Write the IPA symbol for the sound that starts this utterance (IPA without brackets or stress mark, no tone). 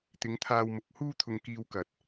t̪